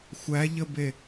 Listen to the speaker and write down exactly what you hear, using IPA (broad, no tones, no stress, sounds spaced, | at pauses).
xʷ æ ʎ ə b e